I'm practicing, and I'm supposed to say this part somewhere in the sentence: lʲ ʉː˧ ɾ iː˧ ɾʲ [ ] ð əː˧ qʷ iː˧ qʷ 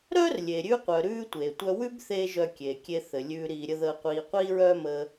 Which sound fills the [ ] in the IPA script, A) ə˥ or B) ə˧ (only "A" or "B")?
A